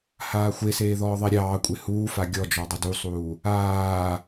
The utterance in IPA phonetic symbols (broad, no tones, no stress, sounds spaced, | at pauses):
h aː xʷ e s eː ð ɔː ðˤ e ɾʲ ɑː kʷʼ e h uː f a ɡʲ ɔ d͡ʒ ɔ dˤ ə d u sˤ uː | aː